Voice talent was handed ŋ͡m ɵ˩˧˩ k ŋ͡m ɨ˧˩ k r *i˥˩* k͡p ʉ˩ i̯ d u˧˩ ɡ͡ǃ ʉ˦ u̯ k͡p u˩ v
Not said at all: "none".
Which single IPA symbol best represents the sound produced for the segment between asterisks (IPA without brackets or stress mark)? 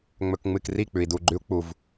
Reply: i˥˩